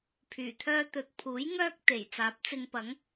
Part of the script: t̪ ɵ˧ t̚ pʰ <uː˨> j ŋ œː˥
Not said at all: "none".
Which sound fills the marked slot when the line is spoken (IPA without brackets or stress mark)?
uː˨˥